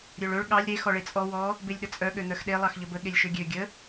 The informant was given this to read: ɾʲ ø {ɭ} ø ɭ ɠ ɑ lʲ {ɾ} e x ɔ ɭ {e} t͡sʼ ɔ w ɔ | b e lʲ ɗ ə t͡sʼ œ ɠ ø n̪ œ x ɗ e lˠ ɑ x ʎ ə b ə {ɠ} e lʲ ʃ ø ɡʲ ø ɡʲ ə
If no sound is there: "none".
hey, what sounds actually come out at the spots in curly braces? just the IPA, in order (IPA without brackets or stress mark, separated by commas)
ɭ, ɾ, e, ɠ